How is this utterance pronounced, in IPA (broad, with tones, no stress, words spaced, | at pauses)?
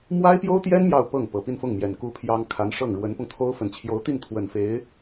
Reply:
mwa˥ɪ̯pjo˥ʊ̯t̪jɛ˥n mjɑ˥˧ʊ̯pɤ˥˩ŋ pɤ˨˩pi˥˧nfʊ˥˩ŋmjɛ˨˩n ku˥pʰjɑ˥ŋ kʰa˧˥nʂɤ˥˩ŋ ɻwə˧˥npʊ˧ŋt̪ʰo˥ʊ̯ fə˨˩nt͡ɕʰjo˧˥ʊ̯t̪i˥˩nt̪ʰwə˨˩n fe˧˥ɪ̯